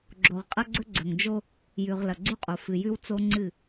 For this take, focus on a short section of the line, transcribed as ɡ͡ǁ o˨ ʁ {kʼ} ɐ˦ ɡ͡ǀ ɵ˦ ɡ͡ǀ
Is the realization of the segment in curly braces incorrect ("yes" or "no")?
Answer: yes